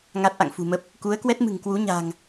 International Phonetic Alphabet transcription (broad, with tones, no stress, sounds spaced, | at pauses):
ŋ a˦˥ t̚ ʔ a̰˧˨ ŋ f ṳ˨˩ m ə˦˥ p̚ | k u˨˦ ə̯ k w ɛ˦˥ t̚ m ɨ̤˨˩ ŋ k w u˨˦ ɲ a̤˨˩ ŋ